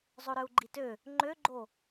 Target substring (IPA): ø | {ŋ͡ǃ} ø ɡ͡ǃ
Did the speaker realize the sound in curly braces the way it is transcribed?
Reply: yes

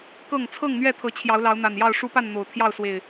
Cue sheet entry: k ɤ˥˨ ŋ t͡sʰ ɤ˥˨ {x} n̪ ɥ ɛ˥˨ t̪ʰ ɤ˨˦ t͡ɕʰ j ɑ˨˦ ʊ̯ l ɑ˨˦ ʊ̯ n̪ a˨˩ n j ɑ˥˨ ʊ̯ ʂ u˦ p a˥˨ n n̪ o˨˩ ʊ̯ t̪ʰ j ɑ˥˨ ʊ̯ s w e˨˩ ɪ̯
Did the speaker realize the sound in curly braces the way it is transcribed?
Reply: no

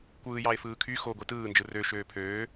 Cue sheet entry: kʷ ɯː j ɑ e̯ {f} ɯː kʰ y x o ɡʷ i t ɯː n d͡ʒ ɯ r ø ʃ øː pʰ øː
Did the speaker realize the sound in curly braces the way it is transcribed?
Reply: yes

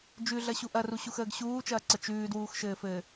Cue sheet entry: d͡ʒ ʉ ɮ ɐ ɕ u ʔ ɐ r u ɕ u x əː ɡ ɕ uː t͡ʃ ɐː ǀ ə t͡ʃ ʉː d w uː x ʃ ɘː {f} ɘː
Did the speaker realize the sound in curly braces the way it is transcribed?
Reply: yes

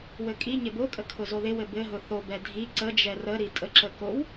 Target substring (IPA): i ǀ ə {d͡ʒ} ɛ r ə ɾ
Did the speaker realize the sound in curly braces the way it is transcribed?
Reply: yes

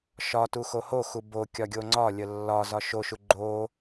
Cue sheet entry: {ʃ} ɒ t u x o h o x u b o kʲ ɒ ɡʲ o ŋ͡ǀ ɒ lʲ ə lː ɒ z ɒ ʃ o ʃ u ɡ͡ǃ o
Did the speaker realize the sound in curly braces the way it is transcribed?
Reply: yes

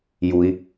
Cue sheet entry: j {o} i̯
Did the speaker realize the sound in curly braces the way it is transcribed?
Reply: no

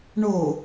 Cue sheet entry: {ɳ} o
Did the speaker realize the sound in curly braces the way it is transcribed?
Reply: yes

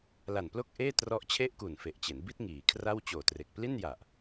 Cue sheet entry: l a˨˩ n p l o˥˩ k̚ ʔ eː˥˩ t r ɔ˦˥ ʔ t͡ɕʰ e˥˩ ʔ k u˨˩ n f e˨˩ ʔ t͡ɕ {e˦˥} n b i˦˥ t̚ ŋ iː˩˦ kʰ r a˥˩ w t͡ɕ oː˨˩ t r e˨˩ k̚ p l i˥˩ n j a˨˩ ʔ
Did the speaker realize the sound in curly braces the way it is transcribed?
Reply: no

